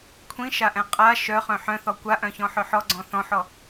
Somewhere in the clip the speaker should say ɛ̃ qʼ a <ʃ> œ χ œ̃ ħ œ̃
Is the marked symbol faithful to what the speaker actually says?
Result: yes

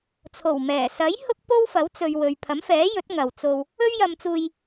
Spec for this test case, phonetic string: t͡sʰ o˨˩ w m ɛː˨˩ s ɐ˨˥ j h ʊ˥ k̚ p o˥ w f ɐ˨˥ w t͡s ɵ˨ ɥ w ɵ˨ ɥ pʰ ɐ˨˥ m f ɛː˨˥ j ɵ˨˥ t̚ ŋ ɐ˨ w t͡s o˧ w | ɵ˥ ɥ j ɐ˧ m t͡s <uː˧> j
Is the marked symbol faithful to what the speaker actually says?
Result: yes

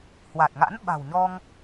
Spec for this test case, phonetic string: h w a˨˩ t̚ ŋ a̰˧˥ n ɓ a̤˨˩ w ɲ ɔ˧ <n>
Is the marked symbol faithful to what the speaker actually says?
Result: no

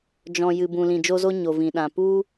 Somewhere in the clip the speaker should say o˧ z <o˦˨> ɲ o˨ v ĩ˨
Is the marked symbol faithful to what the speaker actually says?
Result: no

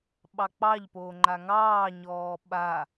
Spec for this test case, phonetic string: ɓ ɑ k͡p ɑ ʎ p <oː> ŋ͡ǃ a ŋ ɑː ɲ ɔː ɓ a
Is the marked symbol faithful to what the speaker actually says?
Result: yes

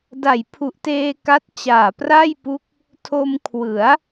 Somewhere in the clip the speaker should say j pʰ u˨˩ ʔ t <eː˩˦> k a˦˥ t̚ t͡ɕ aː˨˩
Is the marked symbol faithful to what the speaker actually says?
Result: no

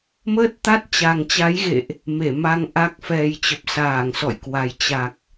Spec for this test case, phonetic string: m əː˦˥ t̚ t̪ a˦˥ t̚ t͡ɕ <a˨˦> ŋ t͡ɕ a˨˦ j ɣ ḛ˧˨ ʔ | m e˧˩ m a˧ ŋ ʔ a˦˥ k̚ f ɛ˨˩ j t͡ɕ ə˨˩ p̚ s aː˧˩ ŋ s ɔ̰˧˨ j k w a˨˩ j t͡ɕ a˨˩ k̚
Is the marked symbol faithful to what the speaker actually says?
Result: no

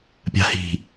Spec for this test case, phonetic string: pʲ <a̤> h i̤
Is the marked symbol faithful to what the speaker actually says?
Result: yes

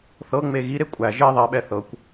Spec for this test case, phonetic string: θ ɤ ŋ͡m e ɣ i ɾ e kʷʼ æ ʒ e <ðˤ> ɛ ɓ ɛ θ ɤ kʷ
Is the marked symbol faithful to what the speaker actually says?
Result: yes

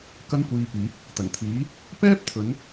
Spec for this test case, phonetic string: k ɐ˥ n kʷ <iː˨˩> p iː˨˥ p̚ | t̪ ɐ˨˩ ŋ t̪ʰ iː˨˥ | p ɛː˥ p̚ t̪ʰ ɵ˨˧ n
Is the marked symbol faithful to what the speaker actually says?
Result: no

